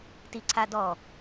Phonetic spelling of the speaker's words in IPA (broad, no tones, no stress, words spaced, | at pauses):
tiǀʰadɔ